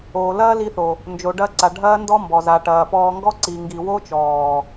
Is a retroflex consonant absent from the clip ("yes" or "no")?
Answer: no